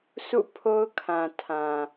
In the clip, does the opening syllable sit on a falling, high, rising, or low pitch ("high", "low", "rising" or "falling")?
falling